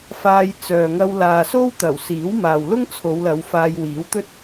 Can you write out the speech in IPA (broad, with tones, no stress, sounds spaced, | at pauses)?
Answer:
f aː˧ j t͡s œː˨ ŋ ɐ˧ w l aː˨ s o˥ w t̪ ɐ˨˩ w s iː˨˥ w m aː˨ w l ʊ˥ ŋ t͡sʰ o˨˧ w l ɐ˨˧ w f aː˧ j w iː˨˥ w t̪ ɵ˥ t̚